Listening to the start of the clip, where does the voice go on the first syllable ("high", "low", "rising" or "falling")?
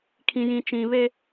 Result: low